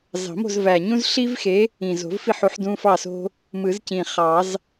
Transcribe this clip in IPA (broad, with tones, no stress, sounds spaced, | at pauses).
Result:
z ɑ̤˨˩˦ m o̤˥˨ z v æ˨˩ ɲ ũ˥ z ɬ i˥ v x e˨˥ | ĩ˨˩ z o̤˨˩˦ v f i˥˨ ħ u˨˥ ħ d ũ˧˥˧ f ɑ˥˨ s o̤˥ | m ɯ˨˩˦ z c ĩ˨˩ χ ɑ˨˩˦ z